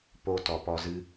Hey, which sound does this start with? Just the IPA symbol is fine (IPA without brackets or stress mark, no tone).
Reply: p